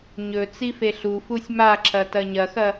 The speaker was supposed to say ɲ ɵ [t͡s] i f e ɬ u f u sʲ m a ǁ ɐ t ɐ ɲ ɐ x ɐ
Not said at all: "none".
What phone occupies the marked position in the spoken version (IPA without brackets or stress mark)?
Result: t͡s